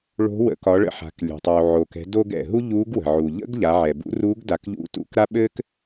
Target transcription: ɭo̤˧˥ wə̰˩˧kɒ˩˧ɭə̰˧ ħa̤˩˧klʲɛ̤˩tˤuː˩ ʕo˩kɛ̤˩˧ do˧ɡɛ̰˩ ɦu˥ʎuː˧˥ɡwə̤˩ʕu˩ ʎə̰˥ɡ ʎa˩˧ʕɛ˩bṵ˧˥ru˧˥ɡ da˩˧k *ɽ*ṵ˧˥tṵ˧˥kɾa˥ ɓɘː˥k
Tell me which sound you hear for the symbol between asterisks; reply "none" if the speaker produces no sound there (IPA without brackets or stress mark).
ʎ